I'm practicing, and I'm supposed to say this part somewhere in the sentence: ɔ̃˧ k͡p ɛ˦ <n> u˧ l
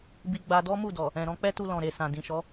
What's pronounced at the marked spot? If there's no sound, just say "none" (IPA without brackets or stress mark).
t